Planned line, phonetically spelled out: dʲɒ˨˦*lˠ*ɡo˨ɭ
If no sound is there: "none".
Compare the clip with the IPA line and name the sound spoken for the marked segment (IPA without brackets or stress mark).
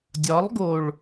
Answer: lˠ